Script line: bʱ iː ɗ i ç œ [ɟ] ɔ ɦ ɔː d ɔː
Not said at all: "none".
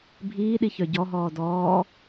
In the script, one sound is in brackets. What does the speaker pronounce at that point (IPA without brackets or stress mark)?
ɟ